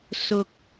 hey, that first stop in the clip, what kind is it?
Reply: plain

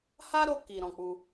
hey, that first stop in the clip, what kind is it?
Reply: plain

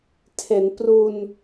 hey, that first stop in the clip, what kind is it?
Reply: aspirated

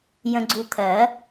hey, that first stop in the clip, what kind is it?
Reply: click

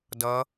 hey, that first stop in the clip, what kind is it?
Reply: plain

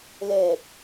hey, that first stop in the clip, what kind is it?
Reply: plain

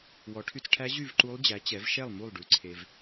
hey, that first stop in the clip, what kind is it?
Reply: aspirated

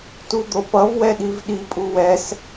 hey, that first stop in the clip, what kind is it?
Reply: plain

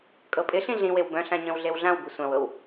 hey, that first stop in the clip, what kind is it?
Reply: ejective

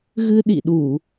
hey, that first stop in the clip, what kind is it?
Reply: implosive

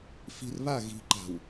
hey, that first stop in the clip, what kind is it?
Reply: click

